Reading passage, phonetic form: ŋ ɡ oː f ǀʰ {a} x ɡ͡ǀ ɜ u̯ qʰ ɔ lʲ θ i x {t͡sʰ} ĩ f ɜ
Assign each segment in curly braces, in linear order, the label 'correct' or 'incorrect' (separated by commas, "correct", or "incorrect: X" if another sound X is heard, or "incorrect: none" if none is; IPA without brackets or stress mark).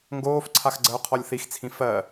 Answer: correct, correct